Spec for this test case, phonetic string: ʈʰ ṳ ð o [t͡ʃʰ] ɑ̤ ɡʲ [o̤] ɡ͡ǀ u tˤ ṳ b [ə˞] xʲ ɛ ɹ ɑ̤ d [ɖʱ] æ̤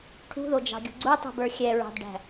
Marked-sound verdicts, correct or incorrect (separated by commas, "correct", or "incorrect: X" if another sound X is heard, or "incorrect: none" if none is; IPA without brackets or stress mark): incorrect: d͡ʒ, incorrect: ṳ, correct, incorrect: ɖ